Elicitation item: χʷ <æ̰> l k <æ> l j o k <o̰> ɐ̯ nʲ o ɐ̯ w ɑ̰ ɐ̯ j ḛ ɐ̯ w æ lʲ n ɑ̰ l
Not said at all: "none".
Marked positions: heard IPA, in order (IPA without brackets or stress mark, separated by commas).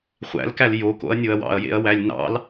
æ̰, æ, o̰